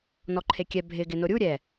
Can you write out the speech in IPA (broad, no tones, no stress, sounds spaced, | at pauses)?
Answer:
n ɔ ǃʰ e kʲ ɛ bʱ ɪ ɡ ɪ n o ɾʲ u ɾʲ ɛ